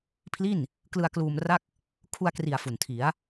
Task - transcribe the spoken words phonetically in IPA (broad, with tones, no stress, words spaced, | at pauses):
pʰli˥˩n | klɯ˧a̯kluː˧m ra˥˩k̚ | kʰu˧a̯kri˨˩a̯ fu˨˩ntʰi˩˦a̯